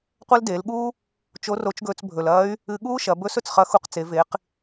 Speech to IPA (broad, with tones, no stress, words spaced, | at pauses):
qʷɐ˥ldeː˩˧lɠuː˥ | t͡ʃo˧˥ro˧˥t͡ʃɡɵː˧t͡s bʱɵ˩lɐː˧˥y̯ | ɨ˧ɠuː˥ʃɐ˩˧ bɵ˧˥s ɵ˩t͡sχɐ˧˥xu˧q t͡se˩˧ve˩˧q